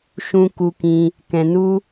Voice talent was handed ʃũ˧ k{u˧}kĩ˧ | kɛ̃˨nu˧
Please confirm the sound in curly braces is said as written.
yes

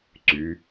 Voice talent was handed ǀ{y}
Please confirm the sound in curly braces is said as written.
yes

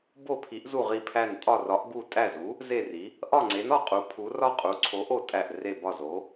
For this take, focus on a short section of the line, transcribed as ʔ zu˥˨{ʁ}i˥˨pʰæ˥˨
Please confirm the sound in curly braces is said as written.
yes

